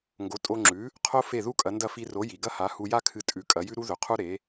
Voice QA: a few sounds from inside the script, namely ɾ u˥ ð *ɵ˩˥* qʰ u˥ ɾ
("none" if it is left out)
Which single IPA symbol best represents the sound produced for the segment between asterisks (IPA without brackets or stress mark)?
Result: ɵ˩˥